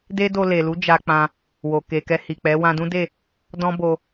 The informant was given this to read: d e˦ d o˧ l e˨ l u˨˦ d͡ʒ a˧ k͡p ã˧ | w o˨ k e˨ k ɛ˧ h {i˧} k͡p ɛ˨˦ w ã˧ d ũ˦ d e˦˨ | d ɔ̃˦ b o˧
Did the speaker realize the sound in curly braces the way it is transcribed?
no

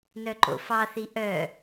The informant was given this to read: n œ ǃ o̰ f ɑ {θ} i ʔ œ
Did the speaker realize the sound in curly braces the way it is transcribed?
yes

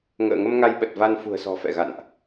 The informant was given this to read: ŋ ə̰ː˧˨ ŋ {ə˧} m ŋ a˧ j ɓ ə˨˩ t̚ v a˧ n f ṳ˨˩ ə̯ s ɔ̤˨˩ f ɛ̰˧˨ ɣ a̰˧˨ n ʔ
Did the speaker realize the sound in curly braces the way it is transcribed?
yes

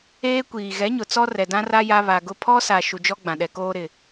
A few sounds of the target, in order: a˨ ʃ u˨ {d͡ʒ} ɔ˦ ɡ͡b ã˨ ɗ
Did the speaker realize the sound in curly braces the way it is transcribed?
yes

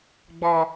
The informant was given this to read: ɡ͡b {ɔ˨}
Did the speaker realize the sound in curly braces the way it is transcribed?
no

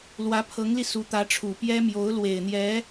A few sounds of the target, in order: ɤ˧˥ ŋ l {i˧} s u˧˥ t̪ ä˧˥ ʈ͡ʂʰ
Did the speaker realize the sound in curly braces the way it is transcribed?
yes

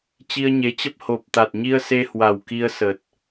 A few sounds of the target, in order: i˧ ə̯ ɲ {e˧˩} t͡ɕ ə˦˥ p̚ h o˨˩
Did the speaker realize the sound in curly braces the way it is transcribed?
no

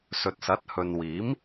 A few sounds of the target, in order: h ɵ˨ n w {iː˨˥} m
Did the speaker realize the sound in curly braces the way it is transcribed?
yes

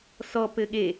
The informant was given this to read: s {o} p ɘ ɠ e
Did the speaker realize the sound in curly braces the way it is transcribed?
no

